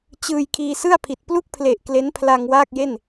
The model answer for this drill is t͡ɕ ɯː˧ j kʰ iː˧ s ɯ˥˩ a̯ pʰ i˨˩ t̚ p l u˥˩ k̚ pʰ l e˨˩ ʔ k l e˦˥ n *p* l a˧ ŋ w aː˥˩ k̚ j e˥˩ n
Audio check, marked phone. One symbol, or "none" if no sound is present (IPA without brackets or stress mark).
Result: pʰ